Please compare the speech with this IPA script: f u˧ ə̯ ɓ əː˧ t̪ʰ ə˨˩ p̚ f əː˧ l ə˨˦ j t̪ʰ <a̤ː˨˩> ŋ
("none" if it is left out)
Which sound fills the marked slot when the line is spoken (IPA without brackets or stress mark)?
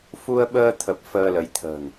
ə̤ː˨˩